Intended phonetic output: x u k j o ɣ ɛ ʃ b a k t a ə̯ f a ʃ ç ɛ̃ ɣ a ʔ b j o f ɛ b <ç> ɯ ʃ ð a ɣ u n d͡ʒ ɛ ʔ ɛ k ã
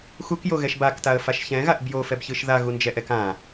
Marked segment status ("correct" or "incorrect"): correct